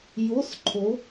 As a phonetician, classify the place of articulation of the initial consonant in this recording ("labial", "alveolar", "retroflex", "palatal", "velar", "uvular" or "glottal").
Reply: palatal